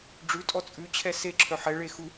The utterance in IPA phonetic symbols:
ɖ͡ʐ ʉ tʼ ɔ t͡sʼ ʉ t͡ɕʰ ɛ s e ǁʰ œ ħ ɛ ɭ e x u

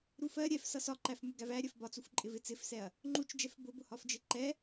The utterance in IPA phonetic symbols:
ɾ u f ɜ ɾʲ ɛ f s ʌ s ɒ ǃ æ f m u ɡ æ v æ ɾʲ ɜ f b ɒ t͡s u f ǃʼ ɪ v ɪ t͡s ɪ f s ɛ ɐ̯ | ŋ͡ǃ u t͡ʃ d͡ʒ ɛ f b ʊ b ʊ h ɒ f d͡ʒ ɪ ǃ ɛ

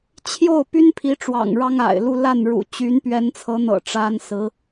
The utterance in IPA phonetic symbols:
t͡ɕʰ j o˥˩ ʊ̯ p y˥ n pʰ i˧˥ ʈ͡ʂ w ɑ̰˨˩ ŋ ɻ ɑ˥ ŋ a̰˨˩ ɪ̯ l u˥˧ l a˥˩ n ɻ ṵ˨˩ t͡ɕ y˧˥ n p ɥ ɛ˧˥ n t͡sʰ ɤ˧˥ n̪ ɤ̰˨˩ ʈ͡ʂ a˥ n s ɹ̩˧˥

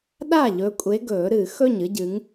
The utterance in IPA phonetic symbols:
ɗ a˥˩ ʎ ɵ˨˦ kʷʼ e˨˦ ɡ ɵː˨˩˦ ɾ ɨ˨˩˦ x ɵ˥˩ ɲ ɨ˦ ɟ ɨ˨˦ ŋ

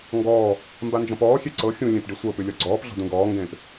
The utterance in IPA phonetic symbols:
ŋ ɡ ɔː | m b a n d͡ʒ ɔ̃ p ɔː xʲ e ǀ ɤ xʲ ũ lʲ ẽ p ɖ i sʷ ɤ p ʉ lʲ ɔ ɡ͡ǀ ɔː p ɮ ɔ̤ d ũ ɡ ɔː ŋ ɡ ẽː p

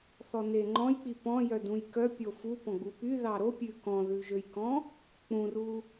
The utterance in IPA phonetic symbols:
θ ɔ n e ŋ͡ǃ ɔ̃ j k͡p i p ɔ̃ j œ d ũ j k œ pʲ o f u p ɔ̃ ɡ͡b u p y ð ɑ ɾ o pʲ ʉ k ɔ̃ ð ʉ ʒ ø j k ɔ̃ | k͡p ũ r u

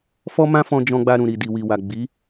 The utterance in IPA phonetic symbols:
f ɔ˦ m ã˦ f ɔ̃˧ d͡ʒ ɔ̃˧ ɡ͡b a˧ ɾ ũ˨ ɾ i˨ d i˨ w i˨ w a˨ ɡ͡b i˨˦

